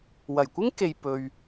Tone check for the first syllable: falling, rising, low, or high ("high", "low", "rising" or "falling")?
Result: low